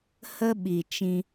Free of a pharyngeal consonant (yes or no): yes